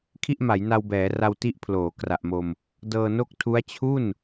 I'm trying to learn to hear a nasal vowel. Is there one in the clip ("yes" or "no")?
no